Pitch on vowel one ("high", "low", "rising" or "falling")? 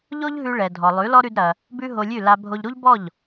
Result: high